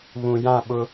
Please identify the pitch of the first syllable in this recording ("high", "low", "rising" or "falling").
low